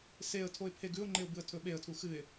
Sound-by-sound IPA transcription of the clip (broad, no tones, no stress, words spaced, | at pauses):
seə̯ tʰoɪ̯pʰeɡʉʊ̯ŋ͡ǃeʊ̯ bɨə̯tʰɵɓeə̯tʰu xɨɪ̯